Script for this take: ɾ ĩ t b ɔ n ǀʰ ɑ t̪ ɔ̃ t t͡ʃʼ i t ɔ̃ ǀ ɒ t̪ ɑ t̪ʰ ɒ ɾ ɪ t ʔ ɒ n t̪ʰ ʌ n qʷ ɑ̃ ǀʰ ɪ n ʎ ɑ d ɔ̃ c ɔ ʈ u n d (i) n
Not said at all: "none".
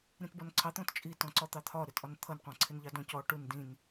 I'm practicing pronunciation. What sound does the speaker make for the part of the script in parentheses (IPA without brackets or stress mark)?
ĩ